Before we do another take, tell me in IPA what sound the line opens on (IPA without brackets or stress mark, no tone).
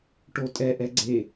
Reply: ʈ